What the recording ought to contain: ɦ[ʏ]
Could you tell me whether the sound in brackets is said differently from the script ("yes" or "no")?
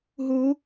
yes